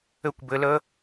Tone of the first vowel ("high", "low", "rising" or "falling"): high